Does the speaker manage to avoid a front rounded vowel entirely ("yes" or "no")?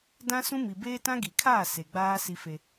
yes